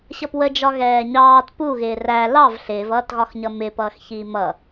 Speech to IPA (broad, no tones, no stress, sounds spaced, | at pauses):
ɕ ʌ p w ə d͡ʒ ɒ ɣ ɛː ɲ ɑː t p u ɣ ɪː r æ l ɑ v ɬ ɪː v ʌː t ɣ ɒ x ɲ ʌ m ɪ p ʌː x ç iː m ʌ